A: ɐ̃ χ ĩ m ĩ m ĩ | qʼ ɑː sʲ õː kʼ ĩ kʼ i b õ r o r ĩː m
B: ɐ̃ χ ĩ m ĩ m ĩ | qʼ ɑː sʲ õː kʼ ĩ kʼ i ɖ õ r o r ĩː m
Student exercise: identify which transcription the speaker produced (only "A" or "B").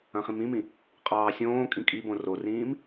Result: A